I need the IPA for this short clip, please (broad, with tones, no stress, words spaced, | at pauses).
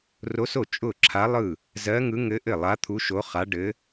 ro˧˥so˥˩ t͡ʃʼʊ˥˩ǁʰa˧˥lˠɯ˥˩ | zɜ˧˥ŋɯ˧˥ ŋɘ˧˥ ʔɘ˥˩lˠa˧˥t̪ʰu˧˥ ʃo˧˥χa˧˥ɖɘ˧˥